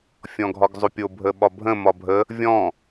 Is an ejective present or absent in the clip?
absent